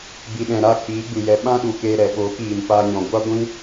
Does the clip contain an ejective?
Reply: no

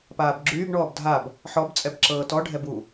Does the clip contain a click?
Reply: yes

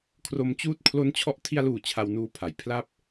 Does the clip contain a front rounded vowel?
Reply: no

